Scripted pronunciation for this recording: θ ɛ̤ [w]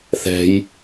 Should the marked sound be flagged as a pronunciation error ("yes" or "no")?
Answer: yes